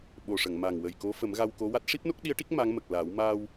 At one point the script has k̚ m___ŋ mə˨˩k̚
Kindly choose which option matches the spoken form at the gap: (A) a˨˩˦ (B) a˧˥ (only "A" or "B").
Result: B